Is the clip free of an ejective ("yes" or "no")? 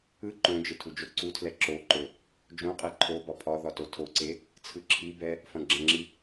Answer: no